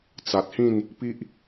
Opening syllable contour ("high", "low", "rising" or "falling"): low